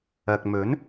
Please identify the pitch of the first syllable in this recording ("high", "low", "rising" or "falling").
low